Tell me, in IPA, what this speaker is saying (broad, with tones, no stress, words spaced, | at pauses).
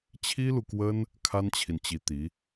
t͡ɕʰi˥lu˨kwə˥n | kʰa˥nt͡ɕʰi˨nt͡ɕi˧˥t̪i˧˥